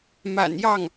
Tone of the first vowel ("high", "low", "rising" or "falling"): low